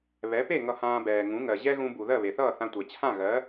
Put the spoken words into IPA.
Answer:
β ɛ˩˥ p e˥˩ ŋ ʌ˧ h ãː˧ b ɛː˩ ŋ ũ˩˥ ŋ ɜ˩ ʑ ɛ˥ ɣ ũ˧ b u˩ ð ɜ˥˩ β e˩ θ ʌː˥˩ θ ã˧ tʷ ɛ˩ t͡ɕʰ ã˥˩ ɣ ɜ˩˥

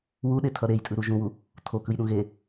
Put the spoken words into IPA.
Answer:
w u ɗ e tʰ ʌ ɾ e j tʼ ɯ ɾ u ʒ ũ w u | tʰ o k ɯ j ɗ ũ ɣ e

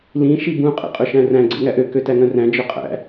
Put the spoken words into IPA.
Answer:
l ĩ ʃ i b ũ qʼ ḛ qʼ ɵ ʃ æ̃ r æ̃ ɡ͡ǀ ḛ ŋ æ ʔ ø k ø t æ ŋ œ̃ r æ̃ d͡ʒ œ qʼ æ̰

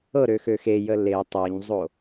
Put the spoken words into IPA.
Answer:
ɤ ɾ ø x ø x e j ə l e tˤ ɤ ɲ zˤ o

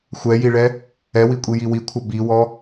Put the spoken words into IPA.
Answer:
xʷ ɛ j i ɭ ɛ | ɛ w i kʷʼ i j i w i kʷʰ ʌ b i w ɔ

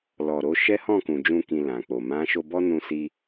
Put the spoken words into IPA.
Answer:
l ɔ˨ ɾ o˧ ʃ ɛ˦ h ɔ̃˦˨ k ũ˨ d͡ʒ ũ˧ k ĩ˨ l ã˨ k͡p o˨ m ã˨˦ ʃ o˧ b ɔ˦ n ũ˧ s i˧

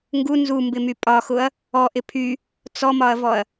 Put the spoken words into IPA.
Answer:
ŋ ɡ u n z u m b ɪ m y pʼ ɒ x ʊ ɐ̯ | ɔ ʔ ɪ pʰ y | t͡s ɔ m ɒ ɐ̯ v ɔ ɐ̯

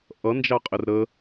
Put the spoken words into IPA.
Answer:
ʔ ʌ n d͡ʒ ɑ qʼ ɪ r ɾ ə

